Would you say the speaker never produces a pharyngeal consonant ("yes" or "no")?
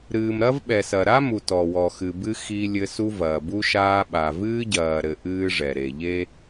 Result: yes